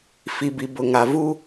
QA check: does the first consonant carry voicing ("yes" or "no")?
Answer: no